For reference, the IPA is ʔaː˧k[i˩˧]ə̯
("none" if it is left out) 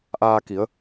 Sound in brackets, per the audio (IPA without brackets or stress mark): i˩˧